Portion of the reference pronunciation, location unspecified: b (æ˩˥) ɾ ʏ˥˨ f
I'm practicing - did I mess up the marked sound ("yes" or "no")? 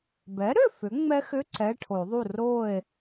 yes